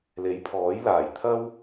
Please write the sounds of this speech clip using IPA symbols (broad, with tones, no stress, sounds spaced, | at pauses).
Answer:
l e˨˥ j pʰ ɔː˨˥ j l aː˨˩ j t̪ʰ ɐ˥ w